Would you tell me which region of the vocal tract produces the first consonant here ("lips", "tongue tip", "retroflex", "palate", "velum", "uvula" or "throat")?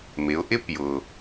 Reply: lips